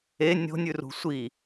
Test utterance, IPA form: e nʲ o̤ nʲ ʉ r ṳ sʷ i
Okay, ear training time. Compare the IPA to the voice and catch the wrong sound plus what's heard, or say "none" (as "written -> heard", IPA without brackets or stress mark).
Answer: none